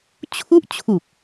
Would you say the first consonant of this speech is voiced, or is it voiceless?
voiceless